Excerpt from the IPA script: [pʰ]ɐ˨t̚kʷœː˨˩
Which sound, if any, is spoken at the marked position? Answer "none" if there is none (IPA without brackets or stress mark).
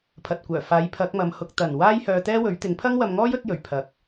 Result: pʰ